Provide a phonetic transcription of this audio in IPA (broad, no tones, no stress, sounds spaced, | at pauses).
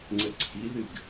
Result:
ŋ͡ǀ ə ǀʰ i ð ɨ ɡ